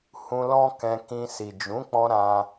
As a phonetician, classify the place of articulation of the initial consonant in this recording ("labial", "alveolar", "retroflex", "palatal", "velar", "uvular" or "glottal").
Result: glottal